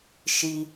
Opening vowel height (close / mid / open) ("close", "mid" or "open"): close